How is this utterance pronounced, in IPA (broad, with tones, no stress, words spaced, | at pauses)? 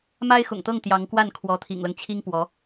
ma˥ɪ̯xʊ̰˨˩ŋt̪ɤ˥˩ŋ t̪jɑ˧˥ŋkwa˥˩n kʰwɔ˧˥t̪ʰḭ˨˩ŋlɤ˦ŋ t͡ɕʰi˥ŋpwɔ˧˥